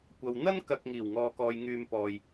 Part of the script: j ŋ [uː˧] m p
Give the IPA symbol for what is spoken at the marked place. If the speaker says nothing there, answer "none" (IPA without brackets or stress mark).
yː˧